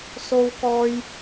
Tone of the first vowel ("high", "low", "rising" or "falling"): low